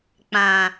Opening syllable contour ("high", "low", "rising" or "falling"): low